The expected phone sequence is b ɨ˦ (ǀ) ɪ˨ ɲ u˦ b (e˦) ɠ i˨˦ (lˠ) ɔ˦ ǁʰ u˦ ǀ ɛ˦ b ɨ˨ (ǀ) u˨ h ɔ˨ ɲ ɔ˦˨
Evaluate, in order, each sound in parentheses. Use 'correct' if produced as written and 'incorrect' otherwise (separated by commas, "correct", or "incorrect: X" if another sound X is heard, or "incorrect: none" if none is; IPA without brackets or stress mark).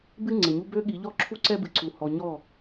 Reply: incorrect: ŋ͡ǀ, incorrect: ø˦, incorrect: ʎ, correct